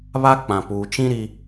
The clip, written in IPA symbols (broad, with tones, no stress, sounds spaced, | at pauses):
β a˦ k͡p ã˨ p uː˨ t͡ʃ ĩ˦ ɾ i˦